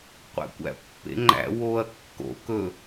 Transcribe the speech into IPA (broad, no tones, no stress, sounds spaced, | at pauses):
qʷ æ̰ kʷ æ̰ pː ḛ ŋ͡ǃ æ̰ w o ɐ̯ kː o̰ k ɵ